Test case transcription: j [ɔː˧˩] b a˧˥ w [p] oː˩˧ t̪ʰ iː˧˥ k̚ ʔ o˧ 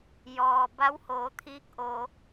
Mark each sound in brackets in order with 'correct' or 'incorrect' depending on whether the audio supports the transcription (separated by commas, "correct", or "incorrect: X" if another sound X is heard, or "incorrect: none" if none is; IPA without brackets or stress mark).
incorrect: ɔː˩, incorrect: h